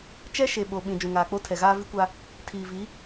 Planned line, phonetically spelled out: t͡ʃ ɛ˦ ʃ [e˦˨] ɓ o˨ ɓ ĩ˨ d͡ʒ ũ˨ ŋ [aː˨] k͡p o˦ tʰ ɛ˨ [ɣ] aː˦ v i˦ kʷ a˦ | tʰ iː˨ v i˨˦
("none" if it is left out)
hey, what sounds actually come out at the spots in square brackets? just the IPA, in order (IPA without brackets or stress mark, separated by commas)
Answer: e˨, aː˨, ɣ